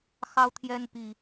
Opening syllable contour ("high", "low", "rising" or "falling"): high